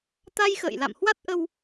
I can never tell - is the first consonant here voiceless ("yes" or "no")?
yes